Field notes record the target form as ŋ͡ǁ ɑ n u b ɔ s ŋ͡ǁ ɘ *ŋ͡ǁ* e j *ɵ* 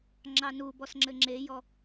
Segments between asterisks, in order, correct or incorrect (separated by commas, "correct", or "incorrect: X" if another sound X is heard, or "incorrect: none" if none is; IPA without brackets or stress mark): correct, incorrect: ɔ